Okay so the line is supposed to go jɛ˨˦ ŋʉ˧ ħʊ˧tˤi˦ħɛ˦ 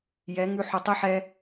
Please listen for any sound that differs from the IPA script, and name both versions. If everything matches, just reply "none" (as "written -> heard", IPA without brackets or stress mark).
none